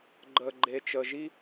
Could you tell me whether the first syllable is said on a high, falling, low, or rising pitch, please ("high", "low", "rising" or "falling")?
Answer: low